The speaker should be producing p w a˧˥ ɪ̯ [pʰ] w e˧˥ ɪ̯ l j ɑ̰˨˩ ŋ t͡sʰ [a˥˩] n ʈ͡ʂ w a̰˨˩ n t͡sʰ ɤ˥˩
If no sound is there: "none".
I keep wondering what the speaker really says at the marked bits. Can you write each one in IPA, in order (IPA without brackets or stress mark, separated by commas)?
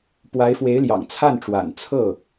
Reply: f, a˥˩